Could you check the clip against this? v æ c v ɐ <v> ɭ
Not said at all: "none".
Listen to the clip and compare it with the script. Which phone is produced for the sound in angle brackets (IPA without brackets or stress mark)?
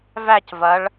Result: none